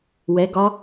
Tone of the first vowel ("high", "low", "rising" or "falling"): rising